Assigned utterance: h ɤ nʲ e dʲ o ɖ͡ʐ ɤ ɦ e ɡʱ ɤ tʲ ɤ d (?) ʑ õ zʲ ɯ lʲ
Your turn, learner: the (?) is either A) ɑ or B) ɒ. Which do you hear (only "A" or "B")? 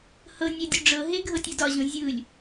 B